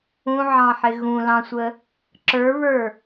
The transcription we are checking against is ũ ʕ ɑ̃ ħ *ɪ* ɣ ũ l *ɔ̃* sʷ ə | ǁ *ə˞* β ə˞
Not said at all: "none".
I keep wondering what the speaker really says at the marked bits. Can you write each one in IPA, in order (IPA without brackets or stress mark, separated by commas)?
ɪ, ɑ̃, ə˞